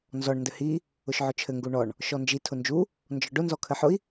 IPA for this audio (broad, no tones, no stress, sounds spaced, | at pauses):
n z ɔ ɳ n d ɘ h i | ʊ ʃ ʕ ʊ t͡ʃʰ ɘ ŋ ɡ u ɳ ɔ ɳ | ʃ ɔ n d͡ʒ i tʰ ʊ n d͡ʒ u | n d͡ʒ ɔ ɖ ʊ n z ɔ kʰ ɘ ħ ʊ i̯